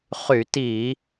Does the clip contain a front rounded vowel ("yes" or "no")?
yes